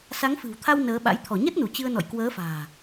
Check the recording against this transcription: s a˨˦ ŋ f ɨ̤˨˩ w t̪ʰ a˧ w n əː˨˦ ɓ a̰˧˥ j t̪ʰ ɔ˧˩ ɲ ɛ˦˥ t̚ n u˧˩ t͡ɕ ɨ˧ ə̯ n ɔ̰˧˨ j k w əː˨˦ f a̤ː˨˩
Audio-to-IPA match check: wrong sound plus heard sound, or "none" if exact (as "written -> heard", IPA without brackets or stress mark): none